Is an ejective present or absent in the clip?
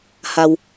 absent